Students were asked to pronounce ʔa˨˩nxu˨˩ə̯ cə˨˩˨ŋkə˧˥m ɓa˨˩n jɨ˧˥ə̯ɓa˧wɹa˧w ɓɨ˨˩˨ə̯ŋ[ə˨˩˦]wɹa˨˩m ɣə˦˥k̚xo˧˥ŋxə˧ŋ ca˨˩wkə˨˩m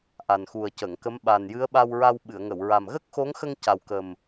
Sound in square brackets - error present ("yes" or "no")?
yes